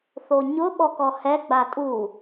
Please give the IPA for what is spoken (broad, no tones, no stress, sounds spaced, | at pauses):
θ o ɲ ʊ ɓ ɔ k ɔ h ɛ ɡ͡b a tʼ u